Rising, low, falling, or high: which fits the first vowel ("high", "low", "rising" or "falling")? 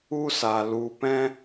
high